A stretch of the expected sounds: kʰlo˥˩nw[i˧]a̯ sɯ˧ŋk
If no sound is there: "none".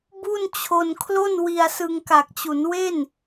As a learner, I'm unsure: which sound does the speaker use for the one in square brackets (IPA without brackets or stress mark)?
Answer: i˧